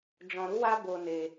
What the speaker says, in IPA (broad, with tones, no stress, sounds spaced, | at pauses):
d͡ʒ ɔ̃˧ ɾ u˦ w a˦ b o˧ n e˧